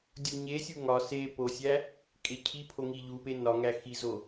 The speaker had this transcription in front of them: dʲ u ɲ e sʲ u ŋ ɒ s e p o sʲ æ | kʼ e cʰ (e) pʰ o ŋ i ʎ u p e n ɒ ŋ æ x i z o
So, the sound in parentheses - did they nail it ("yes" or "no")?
no